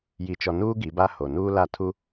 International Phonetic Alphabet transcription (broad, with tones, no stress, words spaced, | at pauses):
ji˨t͡ʃɔ˨nuː˦ ɡi˨˦ba˦ho˨ nuː˦la˦˨ tʰu˦